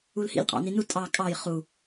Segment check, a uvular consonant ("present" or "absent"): present